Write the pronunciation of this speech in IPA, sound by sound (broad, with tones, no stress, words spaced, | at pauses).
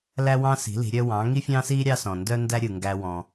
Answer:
læ˥wɑ̃˥si̤˩˥ li̤˩˥ɾʲœ˥ wɑ̃˩˥ŋi˥fʲɑ̃˥si˥ ɾʲɑ˥sɔ̃˩ndœ˥ndæ˥ ɾʲɯ˩ŋɡæ˧wɔ̃˩